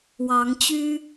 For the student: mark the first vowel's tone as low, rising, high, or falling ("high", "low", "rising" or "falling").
rising